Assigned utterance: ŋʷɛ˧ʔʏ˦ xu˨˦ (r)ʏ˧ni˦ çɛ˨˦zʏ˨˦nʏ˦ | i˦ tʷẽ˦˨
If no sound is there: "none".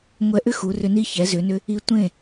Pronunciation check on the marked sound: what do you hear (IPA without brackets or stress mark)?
r